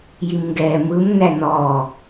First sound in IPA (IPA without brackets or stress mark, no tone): j